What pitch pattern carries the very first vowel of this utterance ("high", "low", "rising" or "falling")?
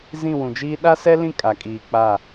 falling